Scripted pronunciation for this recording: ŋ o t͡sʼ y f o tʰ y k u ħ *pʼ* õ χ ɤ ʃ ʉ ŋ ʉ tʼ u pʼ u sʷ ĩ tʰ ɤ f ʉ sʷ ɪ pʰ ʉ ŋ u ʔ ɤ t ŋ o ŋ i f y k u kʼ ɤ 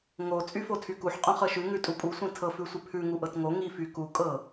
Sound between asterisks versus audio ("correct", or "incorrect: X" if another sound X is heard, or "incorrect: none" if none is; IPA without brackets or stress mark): incorrect: qʼ